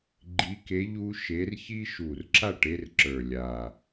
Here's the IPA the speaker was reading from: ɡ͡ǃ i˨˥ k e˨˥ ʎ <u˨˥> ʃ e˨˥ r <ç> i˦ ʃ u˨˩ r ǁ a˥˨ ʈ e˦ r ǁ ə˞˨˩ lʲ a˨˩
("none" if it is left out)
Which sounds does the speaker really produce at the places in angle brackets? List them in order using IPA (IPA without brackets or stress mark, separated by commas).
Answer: u˦, ç